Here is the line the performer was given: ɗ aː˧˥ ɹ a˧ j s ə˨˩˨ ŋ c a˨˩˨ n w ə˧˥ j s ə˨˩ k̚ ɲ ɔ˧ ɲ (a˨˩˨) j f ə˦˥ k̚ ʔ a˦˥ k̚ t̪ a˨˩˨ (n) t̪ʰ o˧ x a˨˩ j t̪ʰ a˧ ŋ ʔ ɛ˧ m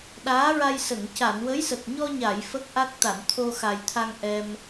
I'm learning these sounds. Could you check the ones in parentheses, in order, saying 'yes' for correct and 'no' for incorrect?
yes, yes

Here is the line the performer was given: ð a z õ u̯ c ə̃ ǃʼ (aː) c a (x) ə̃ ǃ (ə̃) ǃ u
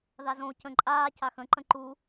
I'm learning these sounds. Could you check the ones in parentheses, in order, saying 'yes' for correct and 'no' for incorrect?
yes, yes, yes

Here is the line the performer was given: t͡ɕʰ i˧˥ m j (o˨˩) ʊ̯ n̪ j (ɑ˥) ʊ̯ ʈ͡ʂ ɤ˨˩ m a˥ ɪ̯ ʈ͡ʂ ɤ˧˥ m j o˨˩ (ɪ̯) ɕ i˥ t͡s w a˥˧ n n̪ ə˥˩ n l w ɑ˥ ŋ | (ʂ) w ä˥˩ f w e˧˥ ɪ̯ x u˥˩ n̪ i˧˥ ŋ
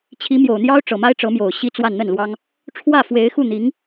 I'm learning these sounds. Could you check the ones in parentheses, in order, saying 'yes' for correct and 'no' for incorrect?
yes, yes, no, no

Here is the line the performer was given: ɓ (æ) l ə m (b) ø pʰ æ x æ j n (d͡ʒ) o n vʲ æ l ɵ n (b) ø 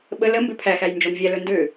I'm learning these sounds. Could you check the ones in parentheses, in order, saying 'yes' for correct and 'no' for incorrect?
no, yes, yes, no

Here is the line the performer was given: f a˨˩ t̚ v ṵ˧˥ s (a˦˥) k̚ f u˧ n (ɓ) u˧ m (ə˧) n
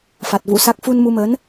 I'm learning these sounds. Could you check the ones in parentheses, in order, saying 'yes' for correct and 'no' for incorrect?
yes, no, no

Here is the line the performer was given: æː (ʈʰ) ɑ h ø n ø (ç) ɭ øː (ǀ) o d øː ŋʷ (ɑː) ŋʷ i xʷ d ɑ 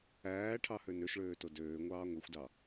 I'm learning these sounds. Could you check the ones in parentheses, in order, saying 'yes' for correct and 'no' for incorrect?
yes, no, no, yes

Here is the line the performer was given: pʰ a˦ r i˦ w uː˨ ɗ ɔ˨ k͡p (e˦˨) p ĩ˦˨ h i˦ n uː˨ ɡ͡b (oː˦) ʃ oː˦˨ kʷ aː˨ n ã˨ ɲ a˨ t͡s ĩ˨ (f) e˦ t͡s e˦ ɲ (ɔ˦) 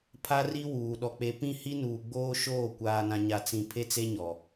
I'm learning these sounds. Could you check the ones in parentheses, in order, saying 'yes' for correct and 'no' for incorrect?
no, yes, no, no

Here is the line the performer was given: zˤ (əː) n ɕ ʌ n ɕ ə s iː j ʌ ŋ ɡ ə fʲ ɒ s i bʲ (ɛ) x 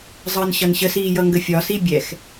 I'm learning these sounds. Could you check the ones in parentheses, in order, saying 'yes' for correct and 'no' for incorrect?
yes, yes

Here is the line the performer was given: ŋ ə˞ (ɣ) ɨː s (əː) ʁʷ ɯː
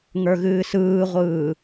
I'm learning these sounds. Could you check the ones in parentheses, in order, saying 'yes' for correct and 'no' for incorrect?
yes, no

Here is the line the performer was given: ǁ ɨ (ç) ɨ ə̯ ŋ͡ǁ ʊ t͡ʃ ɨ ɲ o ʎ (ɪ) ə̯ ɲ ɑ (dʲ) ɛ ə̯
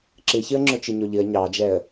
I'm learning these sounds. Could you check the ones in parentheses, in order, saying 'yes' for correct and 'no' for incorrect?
yes, no, no

